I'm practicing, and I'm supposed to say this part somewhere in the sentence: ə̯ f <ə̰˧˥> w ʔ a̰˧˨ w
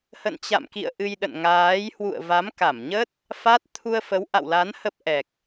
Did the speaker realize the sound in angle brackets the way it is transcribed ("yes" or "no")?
no